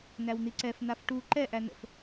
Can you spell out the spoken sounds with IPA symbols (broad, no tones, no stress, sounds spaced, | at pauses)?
n æ w n̪ i ǀ ɛ f n̪ a f ʈ u ǃ ɛ ʔ æ n ə̰ f